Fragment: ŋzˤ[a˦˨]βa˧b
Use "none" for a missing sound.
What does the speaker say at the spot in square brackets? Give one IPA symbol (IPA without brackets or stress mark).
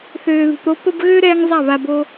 a˦˨